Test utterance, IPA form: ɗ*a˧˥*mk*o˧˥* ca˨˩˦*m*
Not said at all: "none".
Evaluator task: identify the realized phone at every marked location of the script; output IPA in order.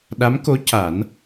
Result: a˧˥, o˧˥, n

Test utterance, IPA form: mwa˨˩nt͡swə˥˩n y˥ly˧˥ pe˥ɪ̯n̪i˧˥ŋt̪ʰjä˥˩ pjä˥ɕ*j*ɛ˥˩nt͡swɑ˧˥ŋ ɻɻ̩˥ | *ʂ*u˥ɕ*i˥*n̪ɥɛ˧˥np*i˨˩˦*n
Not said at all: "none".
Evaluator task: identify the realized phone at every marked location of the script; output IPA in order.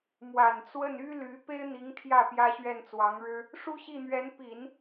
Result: ɥ, ʂ, i˥˩, i˨˩˦

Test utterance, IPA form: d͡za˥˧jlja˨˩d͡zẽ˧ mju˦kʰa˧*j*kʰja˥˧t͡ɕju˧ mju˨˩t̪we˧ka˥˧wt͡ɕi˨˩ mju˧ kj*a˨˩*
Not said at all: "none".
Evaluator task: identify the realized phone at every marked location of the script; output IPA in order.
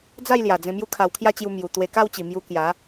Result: w, a˨˦

